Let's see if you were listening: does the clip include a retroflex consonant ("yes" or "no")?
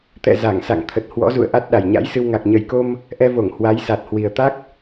no